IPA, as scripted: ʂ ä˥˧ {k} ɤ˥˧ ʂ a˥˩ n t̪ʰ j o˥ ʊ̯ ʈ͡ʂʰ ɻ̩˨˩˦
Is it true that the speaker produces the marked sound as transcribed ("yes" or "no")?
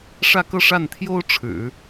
yes